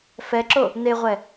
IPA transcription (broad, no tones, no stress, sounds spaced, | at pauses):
f ɛ ǁ o | n̪ e ʁʷ ɛ